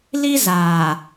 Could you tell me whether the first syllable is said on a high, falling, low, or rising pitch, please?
high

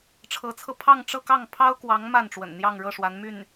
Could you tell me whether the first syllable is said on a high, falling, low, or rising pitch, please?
rising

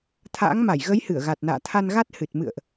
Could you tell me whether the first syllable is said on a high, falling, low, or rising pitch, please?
rising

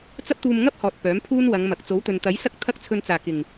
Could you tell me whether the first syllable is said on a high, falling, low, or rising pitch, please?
high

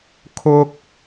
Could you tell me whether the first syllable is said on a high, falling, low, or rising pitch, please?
high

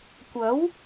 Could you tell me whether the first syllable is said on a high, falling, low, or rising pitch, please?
rising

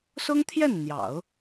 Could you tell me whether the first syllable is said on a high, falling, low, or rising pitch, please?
high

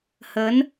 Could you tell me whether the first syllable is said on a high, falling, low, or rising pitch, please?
rising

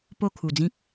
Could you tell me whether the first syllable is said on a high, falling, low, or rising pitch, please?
falling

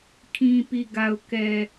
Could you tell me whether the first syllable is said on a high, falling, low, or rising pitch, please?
low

